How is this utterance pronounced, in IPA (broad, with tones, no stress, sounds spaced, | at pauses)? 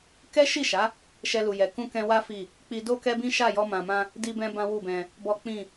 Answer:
k ɛ˦ ʃ i˦˨ ʃ a˨˦ | ʃ ɛ˧ l u˨ j ɛ˨ k ũ˧ k ɛ̃˧ w a˦ f i˦˨ | k͡p i˧ d o˦ k ɛ˦ b ĩ˦ ʃ a˦˨ j ɔ˧ m ã˨ m ã˧ | d i˧ b ɛ̃˧ b ã˦ w u˦˨ b ɛ̃˧ | b ɔ˦ k͡p ĩ˦˨